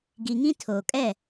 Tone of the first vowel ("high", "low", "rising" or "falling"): low